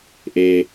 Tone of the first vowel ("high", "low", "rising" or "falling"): low